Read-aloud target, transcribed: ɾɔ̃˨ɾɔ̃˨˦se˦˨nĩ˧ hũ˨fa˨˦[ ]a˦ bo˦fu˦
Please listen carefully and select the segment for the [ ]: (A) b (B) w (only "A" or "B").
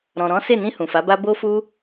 A